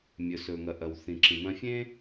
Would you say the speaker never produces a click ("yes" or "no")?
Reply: no